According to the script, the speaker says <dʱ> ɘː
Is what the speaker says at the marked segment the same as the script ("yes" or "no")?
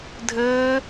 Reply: yes